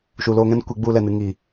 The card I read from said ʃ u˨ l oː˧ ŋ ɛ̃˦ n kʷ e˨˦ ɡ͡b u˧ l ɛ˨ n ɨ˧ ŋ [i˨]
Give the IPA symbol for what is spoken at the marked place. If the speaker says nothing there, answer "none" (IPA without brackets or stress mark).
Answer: i˨